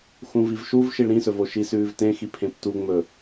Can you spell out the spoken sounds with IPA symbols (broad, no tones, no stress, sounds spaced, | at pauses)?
x ũ v i v ʃ u v ʃ i ɭ ɾ ĩ s ɵ v o ʃ i s ʉː v t ẽ x i pʰ ẽ p t u ŋ͡m ɵ